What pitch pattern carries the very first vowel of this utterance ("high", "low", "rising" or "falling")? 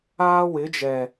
high